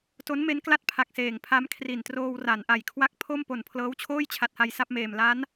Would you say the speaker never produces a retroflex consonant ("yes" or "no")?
yes